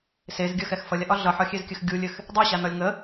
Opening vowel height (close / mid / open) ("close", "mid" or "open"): mid